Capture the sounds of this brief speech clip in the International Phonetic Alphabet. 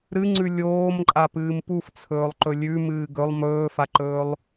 ɾɨŋ͡ǀʉ lʲoːmǃʼapɨːm puft͡sʰɵːlˠǃɵ lʲʉmɨː ɡɵlˠ mɵːfaǃɵːlˠ

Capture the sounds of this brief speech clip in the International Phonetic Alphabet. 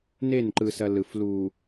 ne˦˨n ǃɯ˦sɐ˦ lɯ˨flu˨

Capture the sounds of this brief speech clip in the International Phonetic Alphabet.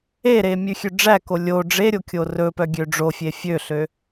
eɾe mʲʉxʲøɖ͡ʐæko lʲo ɖ͡ʐeɾʲo kʲorɵpœ ɡʲøɖ͡ʐofʲe fʲøɬø

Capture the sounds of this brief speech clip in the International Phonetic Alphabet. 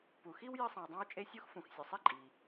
pu˩xi˥w jɨ˥sˤĩ˩wdˤã˥wt͡ʃʼe˥ sʲu˥x fũ˩xsʲɵ˩sˤi˥ ǃʼi˩

